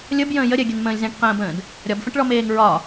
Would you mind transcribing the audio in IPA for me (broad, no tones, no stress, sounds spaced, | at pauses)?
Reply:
lʲ ə b j ə̃ː j ə ɾʲ ɛ ɡʲ ə n m ə̃ː lʲ z ɛ̃ ʈ q ə̃ː b ə̃ː d | ɾʲ ɒ b f ə̃ ʈ ɭ ɔ m eː ŋ ɹ ɒ